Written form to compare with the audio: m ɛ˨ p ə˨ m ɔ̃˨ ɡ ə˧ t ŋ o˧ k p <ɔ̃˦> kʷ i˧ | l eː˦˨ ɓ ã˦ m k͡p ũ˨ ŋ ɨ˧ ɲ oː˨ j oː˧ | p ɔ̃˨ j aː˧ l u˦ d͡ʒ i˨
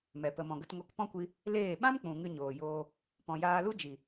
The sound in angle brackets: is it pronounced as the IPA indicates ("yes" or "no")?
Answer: yes